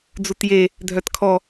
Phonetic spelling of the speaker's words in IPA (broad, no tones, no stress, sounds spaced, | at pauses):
d͡z u t j e | dʱ œ t kʰ ɔ